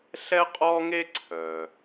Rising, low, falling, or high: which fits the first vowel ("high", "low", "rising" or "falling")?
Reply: high